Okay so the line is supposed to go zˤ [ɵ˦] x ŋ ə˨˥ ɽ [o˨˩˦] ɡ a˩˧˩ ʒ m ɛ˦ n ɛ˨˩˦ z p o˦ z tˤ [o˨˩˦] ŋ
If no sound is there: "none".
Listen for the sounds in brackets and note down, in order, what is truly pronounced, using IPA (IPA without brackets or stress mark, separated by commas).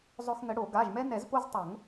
ɵ˦, o˨˩˦, o˨˩˦